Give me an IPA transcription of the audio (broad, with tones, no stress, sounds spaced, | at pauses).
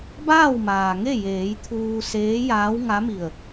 b aː˥˨ w m aː˩ ŋ e˥˨ j eː˩˧ j t̪ʰ uː˧ s eː˧˥ j aː˧˥ w ŋ a˧˥ m i˧˩ ə̯